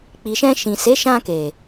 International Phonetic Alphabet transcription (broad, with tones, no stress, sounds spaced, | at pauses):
k͡p i˨ ʃ ɛ̃˧ ʃ ĩ˨ s e˨˦ ʃ ã˧ k e˨